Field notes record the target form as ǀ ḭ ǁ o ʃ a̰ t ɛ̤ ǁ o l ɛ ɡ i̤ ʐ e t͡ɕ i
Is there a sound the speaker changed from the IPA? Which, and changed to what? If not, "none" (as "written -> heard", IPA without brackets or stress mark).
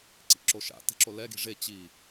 none